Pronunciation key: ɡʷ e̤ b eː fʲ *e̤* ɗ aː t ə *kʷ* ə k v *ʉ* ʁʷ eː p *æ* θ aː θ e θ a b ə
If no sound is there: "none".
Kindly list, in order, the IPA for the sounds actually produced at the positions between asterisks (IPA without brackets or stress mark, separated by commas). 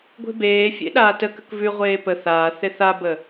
ḛ, k, ʉ, ə